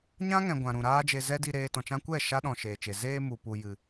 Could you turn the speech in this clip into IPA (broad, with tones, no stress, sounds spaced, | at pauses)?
ɲ ã˦ ŋ ɛ̃˨ ɡʷ ã˨ ɾ ũ˨ ɾ aː˦ d͡ʒ e˧ z ɛ˦ d i˧ ɾ eː˧ t ɔ̃˨ t͡ʃ ã˧ kʷ ɛ˦˨ ʃ a˦ ɗ ɔ̃˨ ʃ eː˨ t͡ʃ e˨ z eː˧ m u˨ p u˨ j ɨ˨